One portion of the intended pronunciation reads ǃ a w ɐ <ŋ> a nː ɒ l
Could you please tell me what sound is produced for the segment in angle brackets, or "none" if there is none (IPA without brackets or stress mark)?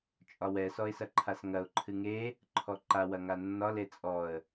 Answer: ŋ